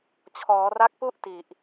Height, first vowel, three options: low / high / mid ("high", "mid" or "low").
mid